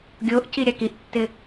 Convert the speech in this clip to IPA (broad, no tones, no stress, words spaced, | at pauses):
ɡʲoʔciɾʲak iʔtːɪ